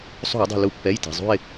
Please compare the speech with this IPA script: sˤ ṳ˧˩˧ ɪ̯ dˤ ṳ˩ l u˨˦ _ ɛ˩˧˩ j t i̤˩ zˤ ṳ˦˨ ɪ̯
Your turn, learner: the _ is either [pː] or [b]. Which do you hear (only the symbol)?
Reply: pː